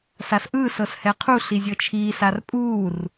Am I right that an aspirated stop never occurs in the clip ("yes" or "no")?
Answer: no